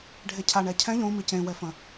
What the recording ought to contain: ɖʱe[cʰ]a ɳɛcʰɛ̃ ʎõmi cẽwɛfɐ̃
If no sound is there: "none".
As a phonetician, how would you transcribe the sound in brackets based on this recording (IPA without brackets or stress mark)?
cʰ